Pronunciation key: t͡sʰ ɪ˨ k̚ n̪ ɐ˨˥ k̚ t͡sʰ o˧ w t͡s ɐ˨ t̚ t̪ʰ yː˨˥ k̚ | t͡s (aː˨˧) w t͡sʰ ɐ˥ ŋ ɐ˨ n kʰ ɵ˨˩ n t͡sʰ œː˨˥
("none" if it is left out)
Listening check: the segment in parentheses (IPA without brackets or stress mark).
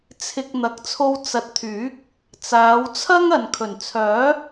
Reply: aː˨˧